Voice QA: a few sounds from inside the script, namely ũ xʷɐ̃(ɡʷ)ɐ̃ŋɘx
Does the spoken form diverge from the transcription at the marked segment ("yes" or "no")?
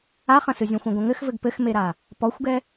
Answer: no